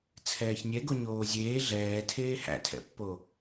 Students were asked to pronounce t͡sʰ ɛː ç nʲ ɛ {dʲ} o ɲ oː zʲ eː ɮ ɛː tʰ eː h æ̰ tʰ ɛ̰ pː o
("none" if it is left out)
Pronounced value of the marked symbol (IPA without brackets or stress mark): ɡ